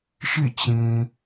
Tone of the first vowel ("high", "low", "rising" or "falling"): falling